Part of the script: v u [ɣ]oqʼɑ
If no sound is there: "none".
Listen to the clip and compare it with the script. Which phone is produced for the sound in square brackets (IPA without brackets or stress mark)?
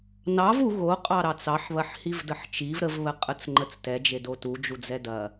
ɣ